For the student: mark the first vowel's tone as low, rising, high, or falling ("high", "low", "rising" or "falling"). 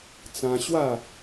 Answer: high